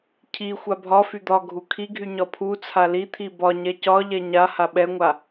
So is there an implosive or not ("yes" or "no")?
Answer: yes